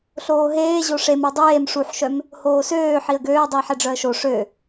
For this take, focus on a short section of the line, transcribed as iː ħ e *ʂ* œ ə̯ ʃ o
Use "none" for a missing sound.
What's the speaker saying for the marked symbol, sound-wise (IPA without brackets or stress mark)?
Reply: ɖ͡ʐ